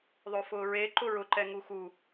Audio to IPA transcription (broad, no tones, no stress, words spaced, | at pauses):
ðˤofʊːɹe ǃʊɹʊǃɛ ŋuxu